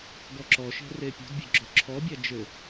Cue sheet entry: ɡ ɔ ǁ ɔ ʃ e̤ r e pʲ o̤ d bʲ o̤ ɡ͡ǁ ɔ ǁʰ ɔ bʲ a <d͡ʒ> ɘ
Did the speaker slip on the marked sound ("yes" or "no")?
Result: no